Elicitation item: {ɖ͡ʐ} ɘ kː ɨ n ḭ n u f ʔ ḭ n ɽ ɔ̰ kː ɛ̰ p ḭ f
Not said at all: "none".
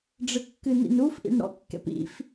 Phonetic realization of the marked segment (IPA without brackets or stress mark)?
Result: ɖ͡ʐ